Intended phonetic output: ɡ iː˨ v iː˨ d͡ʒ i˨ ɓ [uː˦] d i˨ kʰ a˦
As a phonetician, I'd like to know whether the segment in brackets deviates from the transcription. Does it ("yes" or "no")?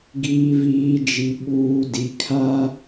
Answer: yes